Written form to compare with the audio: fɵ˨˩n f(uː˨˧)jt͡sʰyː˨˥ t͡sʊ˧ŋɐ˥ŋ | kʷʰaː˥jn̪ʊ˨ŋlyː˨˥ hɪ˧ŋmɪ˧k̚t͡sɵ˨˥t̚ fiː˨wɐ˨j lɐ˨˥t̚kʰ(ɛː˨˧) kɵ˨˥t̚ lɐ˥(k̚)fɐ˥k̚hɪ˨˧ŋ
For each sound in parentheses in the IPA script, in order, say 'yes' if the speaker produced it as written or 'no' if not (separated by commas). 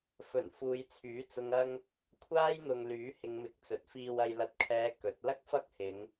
yes, yes, yes